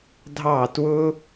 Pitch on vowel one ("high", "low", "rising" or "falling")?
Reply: falling